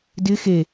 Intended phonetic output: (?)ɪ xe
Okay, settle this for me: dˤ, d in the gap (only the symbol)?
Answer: d